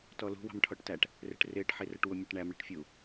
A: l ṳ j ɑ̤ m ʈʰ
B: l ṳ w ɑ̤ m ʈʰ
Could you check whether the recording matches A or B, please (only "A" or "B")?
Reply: B